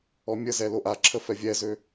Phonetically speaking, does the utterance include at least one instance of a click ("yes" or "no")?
yes